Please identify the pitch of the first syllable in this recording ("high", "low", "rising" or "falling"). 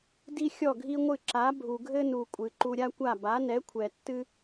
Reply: high